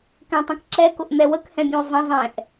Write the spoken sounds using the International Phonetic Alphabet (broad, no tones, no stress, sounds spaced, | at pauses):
k ɛ̃ tˤ ə̃ k ǁ ɛ k ʊ ʔ n̪ ɛ w ə k h ɛ̃ bʲ ũ y̯ zˤ ə̃ zˤ ɛ̃ ʔ